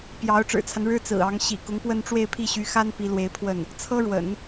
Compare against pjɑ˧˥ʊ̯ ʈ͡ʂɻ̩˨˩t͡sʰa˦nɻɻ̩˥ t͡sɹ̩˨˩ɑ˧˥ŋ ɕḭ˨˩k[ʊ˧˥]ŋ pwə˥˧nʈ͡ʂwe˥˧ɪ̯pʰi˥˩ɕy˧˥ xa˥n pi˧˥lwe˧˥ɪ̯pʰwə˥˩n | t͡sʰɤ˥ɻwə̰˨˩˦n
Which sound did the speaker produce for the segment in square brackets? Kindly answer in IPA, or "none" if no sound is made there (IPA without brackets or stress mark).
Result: ʊ˧˥